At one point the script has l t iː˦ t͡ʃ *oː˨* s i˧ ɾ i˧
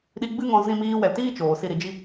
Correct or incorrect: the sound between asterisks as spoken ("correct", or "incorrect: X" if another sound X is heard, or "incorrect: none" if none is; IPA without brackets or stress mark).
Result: correct